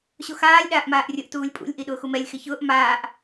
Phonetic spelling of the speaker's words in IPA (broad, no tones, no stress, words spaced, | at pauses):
ɕoxaːlʲ ɗaːʔmaːʔrʲʊʔ tuːlʲpʼṵlʲ ʔiɗʊːxumɛlʲ xɪçʊːʔ maːʔ